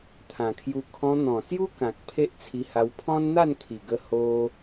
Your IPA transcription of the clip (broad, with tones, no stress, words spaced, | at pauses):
t̪ʰã˨˩kʰju˧ kʰɔ̃˧n̪ɔ̃˨˩sju˦kã˨k̚ pʰe˦ʔt͡sʰi˧ha˧w pʰɔ̃˦nn̪a˥˧nkʰi˨˩ɡə˧ ho˧